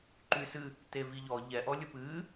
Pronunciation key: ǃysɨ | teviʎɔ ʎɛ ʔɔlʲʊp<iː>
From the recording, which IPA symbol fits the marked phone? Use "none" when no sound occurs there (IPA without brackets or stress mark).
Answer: ɨː